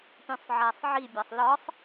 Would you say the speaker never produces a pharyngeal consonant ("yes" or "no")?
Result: no